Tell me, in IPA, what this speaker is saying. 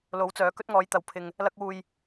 lo˨˥wt͡sœː˨˥ kɵ˥t̚ŋɔː˨˥jt̪ɐ˨˧w pʰɪ˧ŋ | lɐ˥k̚wuː˧j

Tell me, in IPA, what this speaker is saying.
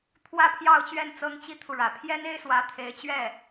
t̪ʰwä˥˧pʰjɑ˥˧ʊ̯t͡ɕɥɛ˥˩n t͡sɤ˥ŋt͡ɕi˥t̪ʰu˨ɻä˨˩ pʰjɛ˥ne˥ɪ̯swä˧˥ t̪ʰe˧˥ɪ̯t͡ɕɥɛ˥˩

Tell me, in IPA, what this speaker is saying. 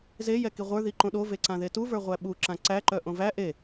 zejɛki ʁʷə˞ ðiǃõɗove ǀãðetuvə˞ ʁʷæɓu ǁãǀæǃœ ʔõvæ ʔe

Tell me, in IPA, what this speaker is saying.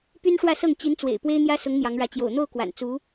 py˥nʂwä˥˧sɤ˥˩ŋ t͡ɕi˧˥nt͡swḛ˨˩ɪ̯ pwe˥ɪ̯n̪jä˥sʊ˧˥ŋ n̪jɑ˧˥ŋɻä˧˥ t͡ɕjo̰˨˩ʊ̯n̪o˥˩ʊ̯kwa̰˨˩n t͡su˧˥

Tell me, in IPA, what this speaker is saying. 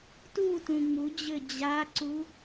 tutũ ŋ͡mud͡ʑɘ d͡ʑaǀu

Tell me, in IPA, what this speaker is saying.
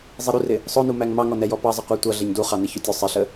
zˤiɾurɪ | sˤʊnumæŋ mɑŋɔnɛjɔ pɑzˤɪqʷə˞ tʷʌ ɮɛɲduχɑ nɪçʊtʲʊ sˤɪɬə

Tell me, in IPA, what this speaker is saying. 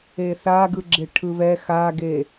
eθaɡɯɡ͡ǁe ʈʰɯβɛ xaɡe

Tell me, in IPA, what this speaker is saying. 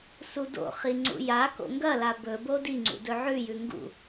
sudo̰χi ŋ͡ǀṵjako̰ ŋɡɐla bɵbo diŋ͡ǀṵ dɵʕʉjʉ ŋɡṵ

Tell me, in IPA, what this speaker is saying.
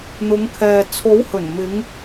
n̪ʊ˨˧ŋkʰɛː˨ t͡sʰo˨˥whɵ˨˩nmɪ˨˧ŋ

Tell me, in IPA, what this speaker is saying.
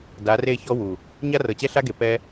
da˨˦re˦˨çɔ˦ wu˨ | ɲa˦rɤ˨t͡ɕɛ˦ ɬa˦ɡe˨ pɛ˦

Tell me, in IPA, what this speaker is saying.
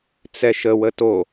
t͡sɛʃə wəto

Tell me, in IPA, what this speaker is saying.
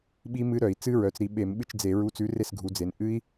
ɓi˦˥mɨ˦˥ɾœ˧˩˧i̯ t͡sɨ˦˥ ɹœ˩˧t͡sɾi˩˧ ɓe˧˩˧m ɓɨ˥˨t͡ʃd͡ze˧˩˧ ɹu˨˥t͡sʉ˨˥ re˥˨sɡʱu˩˧ d͡ze˩˧n ʔɨ˦˥i̯

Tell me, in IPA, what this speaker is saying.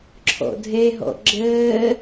ǁʰɔ̰dʱɛɦɔ̰ ɡ͡ǁɜː

